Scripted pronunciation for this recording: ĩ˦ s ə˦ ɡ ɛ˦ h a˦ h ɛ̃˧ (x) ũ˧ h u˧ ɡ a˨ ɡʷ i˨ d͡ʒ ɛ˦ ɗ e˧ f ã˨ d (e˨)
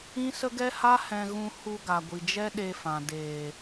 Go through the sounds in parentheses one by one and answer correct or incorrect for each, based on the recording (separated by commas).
incorrect, incorrect